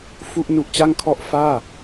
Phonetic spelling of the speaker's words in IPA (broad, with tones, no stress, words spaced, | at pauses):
fu˥˩ʔnu˦˥ʔt͡ɕa˥˩ŋkʰɔ˥˩ʔ faː˥˩